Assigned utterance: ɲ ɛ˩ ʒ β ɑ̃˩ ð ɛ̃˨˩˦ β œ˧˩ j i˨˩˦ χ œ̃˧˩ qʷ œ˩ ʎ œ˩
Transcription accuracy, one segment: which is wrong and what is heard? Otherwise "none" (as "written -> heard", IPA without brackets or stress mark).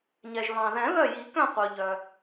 χ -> k